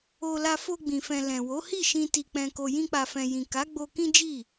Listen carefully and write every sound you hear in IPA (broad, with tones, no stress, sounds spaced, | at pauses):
o˧ l a˧ f o˧ ɡ͡b ĩ˨ f ɛ̃˨ l ɛ̃˨ w o˨˦ h i˦˨ ʃ ĩ˧ t i˨ k͡p ɛ̃˨ k o˨ j ĩ˧ k͡p a˨ f ɛ̃˨ j ĩ˨ k a˨˦ ɡ͡b o˧ k ĩ˦ d͡ʒ i˦˨